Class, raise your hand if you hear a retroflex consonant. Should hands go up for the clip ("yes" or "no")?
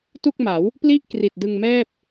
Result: no